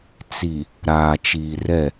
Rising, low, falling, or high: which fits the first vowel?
low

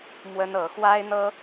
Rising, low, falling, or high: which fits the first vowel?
high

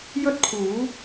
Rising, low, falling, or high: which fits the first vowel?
high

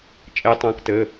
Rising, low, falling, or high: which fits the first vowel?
rising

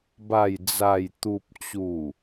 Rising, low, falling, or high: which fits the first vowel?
low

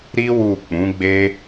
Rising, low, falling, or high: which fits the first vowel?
high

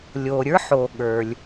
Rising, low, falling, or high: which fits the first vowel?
low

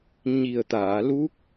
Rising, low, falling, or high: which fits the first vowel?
low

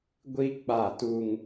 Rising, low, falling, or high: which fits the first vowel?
high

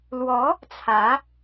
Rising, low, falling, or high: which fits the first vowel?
rising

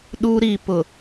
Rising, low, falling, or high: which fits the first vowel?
high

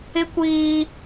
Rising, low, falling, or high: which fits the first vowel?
high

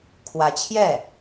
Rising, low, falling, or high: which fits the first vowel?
rising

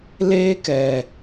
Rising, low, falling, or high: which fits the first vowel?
high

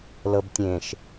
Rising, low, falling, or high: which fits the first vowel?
low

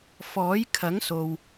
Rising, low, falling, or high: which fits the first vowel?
rising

